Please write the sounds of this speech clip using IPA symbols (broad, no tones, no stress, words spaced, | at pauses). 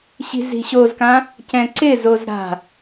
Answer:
ɕi̤zi̤ɕozkã | cɛ̃ǀɪ zozɾa̤